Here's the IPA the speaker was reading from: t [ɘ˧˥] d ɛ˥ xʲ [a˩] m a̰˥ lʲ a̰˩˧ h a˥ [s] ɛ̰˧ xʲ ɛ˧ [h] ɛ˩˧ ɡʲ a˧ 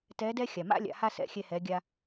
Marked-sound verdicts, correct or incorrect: incorrect: ɛ˧˥, correct, correct, correct

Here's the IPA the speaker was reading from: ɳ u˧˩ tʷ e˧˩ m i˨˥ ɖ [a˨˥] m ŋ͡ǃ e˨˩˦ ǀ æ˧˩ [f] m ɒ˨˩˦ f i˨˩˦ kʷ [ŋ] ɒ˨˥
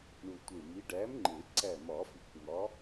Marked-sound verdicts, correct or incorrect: incorrect: æ˨˥, incorrect: none, correct

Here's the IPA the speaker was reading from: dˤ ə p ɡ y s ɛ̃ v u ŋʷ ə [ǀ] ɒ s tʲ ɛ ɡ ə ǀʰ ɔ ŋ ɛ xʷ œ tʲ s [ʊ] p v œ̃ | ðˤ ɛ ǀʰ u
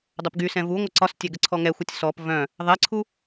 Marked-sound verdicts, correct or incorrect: correct, incorrect: ɔ

